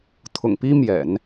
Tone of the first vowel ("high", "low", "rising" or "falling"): low